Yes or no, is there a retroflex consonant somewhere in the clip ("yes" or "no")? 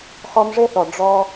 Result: yes